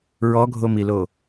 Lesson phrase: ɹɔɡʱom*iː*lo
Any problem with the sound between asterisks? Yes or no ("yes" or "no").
yes